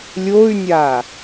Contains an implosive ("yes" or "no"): no